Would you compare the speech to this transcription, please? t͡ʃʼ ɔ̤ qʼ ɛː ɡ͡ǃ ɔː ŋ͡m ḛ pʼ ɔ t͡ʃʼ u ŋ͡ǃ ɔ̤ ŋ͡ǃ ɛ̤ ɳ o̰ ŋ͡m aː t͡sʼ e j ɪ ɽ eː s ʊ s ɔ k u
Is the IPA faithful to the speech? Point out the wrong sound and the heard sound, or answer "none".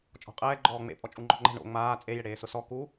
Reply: none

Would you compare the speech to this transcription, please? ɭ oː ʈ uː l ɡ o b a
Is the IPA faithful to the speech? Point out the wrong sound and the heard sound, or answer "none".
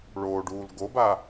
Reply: ʈ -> ɖ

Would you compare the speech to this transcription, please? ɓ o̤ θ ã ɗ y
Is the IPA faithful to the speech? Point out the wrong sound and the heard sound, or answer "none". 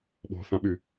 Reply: ɗ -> ɓ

